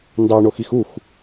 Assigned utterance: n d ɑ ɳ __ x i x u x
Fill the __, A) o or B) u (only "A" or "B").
A